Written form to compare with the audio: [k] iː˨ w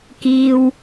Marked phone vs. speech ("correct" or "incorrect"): correct